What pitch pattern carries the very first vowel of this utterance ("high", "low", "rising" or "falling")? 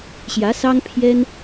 rising